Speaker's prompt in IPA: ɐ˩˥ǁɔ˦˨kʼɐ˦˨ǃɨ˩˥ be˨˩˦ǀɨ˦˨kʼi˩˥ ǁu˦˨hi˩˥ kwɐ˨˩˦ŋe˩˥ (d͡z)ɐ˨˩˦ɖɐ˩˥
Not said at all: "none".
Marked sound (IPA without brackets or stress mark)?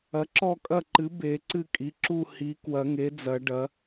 d͡z